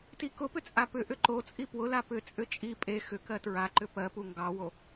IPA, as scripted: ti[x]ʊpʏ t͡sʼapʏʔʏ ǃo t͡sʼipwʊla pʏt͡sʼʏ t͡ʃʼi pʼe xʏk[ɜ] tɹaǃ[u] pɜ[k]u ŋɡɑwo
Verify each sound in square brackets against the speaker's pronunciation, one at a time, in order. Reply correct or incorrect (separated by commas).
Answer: incorrect, correct, incorrect, incorrect